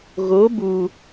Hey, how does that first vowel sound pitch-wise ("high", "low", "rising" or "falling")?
rising